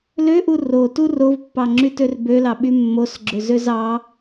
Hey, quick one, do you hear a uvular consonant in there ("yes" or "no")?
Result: no